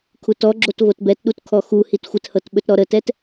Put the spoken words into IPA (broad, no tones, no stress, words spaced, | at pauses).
kʰutɔ ɡ͡ǁotvotbɛtɗut kʰɔxu hitxʷəthɤtɓɵt ɾɔɾətɛt